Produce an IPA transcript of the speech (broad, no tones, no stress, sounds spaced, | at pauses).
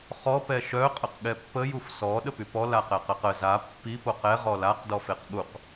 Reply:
χ ɔ p ɛ ʃ œ qʼ ə q ɠ ɛ pː ə j u f s ɔ ɗ ə p y p ɔ l a q ɛ q ə q ə z a pː i p o q ɛ ʁ ɔ l a q d ɔ f e q ɠ u q